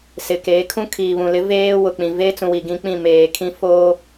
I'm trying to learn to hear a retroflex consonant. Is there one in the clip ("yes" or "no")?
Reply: no